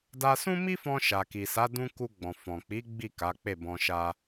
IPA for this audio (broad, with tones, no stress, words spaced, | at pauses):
da˧sũ˦mi˦fɔ̃˧ ʃa˨ki˨sa˨˦ dũ˦ ku˧ɡ͡bɔ̃˨ fɔ̃˨k͡pi˨˦ ɡ͡bi˦˨ ka˨˦k͡pe˦˨bɔ̃˧ʃa˦